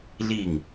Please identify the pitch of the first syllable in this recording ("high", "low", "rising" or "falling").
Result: falling